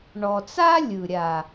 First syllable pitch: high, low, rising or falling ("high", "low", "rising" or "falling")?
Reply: low